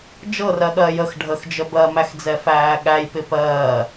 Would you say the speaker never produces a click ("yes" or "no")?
yes